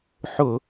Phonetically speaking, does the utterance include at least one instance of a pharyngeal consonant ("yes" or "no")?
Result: yes